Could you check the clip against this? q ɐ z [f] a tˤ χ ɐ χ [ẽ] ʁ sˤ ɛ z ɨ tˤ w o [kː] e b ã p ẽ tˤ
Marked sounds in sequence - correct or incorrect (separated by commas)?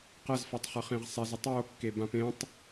correct, correct, correct